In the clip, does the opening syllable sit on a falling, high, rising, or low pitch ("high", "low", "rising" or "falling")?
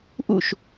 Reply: falling